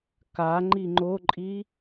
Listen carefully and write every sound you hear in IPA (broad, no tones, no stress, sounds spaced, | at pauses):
k a ŋ͡ǃ i ŋ͡ǃ o ǃʼ i